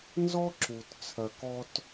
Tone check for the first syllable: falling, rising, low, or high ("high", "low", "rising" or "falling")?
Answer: high